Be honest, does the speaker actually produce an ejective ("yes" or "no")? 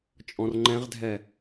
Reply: yes